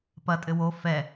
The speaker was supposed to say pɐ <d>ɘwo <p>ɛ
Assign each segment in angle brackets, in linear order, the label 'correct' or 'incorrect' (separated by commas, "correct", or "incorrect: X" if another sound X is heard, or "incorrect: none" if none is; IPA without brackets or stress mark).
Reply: incorrect: tʼ, incorrect: f